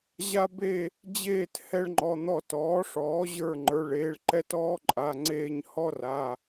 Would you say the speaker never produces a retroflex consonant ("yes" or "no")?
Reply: no